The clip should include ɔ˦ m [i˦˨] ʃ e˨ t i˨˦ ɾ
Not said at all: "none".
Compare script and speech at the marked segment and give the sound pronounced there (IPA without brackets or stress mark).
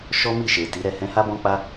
i˦˨